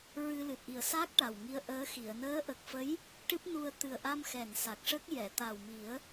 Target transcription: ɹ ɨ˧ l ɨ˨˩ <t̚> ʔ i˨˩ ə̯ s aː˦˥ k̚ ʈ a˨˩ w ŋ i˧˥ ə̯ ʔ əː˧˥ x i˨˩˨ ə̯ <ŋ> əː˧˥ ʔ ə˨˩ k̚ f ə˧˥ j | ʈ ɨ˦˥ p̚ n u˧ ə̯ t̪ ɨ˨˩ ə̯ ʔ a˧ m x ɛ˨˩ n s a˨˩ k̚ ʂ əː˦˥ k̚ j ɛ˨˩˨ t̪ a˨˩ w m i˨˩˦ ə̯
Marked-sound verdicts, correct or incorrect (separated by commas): correct, incorrect